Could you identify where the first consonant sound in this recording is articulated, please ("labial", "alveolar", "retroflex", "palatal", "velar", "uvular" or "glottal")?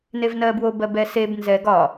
alveolar